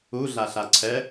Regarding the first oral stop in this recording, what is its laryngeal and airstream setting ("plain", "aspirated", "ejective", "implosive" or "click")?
click